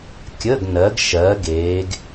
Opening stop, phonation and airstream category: plain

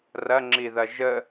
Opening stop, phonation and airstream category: click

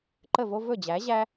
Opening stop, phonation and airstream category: click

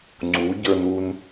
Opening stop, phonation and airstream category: click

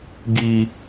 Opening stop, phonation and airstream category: plain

